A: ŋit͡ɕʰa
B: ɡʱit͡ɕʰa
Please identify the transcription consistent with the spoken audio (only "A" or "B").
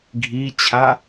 B